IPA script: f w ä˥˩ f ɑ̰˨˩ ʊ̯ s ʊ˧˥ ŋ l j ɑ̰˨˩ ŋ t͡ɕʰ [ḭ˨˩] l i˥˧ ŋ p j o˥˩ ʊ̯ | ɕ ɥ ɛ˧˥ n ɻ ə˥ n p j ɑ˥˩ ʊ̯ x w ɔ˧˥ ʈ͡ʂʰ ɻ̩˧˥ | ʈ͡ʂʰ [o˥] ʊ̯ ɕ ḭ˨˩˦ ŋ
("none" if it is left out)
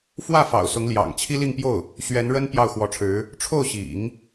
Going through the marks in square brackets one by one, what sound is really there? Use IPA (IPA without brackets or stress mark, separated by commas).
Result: i˥, o˥˩